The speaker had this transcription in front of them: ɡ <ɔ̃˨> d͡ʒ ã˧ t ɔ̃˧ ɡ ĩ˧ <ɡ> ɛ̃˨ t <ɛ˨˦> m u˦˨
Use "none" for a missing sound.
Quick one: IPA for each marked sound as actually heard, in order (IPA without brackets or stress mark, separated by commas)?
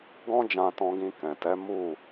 ɔ̃˦, k, ɛ˨˦